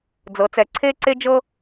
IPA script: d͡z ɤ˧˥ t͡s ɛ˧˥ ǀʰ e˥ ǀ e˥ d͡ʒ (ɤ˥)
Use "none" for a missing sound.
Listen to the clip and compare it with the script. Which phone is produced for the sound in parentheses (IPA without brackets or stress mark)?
ɤ˥